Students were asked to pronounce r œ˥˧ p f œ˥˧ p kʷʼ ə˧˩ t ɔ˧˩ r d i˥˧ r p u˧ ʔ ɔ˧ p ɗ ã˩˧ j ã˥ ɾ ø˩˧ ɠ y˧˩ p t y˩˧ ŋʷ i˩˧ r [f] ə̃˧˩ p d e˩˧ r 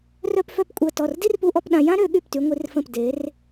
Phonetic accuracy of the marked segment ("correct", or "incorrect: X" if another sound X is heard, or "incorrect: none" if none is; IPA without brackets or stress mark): correct